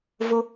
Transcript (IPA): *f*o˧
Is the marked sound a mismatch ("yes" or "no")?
yes